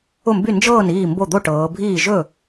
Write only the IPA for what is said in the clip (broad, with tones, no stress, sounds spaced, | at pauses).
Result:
ʊ˥˩ m b y˥˩ n d͡ʒ ɤː˥˩ n iː˥˩ m b o˥˩ d̪ o˥˩ ʈ ɤː˩˧ bʱ iː˥˩ ʒ ɵ˥˩